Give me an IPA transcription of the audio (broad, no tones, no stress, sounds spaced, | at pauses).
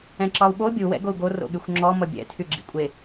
ɛ̃ ǁ ɒ u̯ ɓ o bʲ u w ɛ̰ ɡ o u̯ ɡ o r o̰ ɠ y xʷ ŋ͡ǁ ɔ m ʌ bʲ ɛ̰ tʰ y ɡ͡ǁ ḭ kʷʼ e